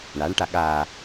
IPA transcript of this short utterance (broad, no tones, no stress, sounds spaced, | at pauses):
ɳ a ɳ ʈ a ɠ a